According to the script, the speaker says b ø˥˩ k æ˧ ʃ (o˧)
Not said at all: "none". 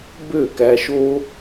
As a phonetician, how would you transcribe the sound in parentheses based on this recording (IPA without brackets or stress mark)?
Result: o˥